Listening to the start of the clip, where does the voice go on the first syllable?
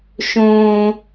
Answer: high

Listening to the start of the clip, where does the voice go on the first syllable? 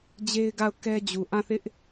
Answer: high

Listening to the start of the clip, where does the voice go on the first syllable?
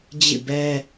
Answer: falling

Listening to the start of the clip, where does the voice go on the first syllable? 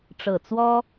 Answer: low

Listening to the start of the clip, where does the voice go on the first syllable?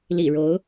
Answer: low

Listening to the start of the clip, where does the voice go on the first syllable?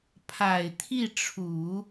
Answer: low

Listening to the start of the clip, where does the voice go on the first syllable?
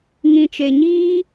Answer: low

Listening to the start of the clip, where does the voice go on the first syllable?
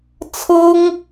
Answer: high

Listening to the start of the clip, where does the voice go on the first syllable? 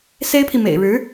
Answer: high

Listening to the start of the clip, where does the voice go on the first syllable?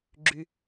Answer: low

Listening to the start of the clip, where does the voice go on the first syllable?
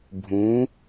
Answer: rising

